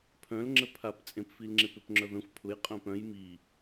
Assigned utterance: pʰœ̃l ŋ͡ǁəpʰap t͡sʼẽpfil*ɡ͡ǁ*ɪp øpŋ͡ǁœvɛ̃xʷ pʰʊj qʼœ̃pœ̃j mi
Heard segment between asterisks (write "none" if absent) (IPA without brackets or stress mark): ŋ͡ǁ